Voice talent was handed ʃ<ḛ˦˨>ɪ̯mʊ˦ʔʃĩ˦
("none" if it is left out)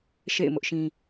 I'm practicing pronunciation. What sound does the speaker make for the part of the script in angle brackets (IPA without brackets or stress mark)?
ḛ˦˨